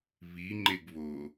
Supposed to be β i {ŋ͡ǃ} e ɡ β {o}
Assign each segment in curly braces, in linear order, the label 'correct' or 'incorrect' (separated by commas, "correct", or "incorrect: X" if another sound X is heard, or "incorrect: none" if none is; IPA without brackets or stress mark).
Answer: correct, correct